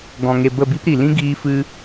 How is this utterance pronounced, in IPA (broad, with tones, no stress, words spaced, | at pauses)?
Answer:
ɡɔ̃˨ŋe˨ bə˦˨bi˦pɾi˨ lĩ˦ɡiː˧ fɨ˧